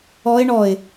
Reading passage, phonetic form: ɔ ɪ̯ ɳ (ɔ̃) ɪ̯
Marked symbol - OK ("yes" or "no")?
no